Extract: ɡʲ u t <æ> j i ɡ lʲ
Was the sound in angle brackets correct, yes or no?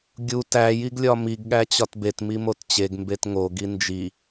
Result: yes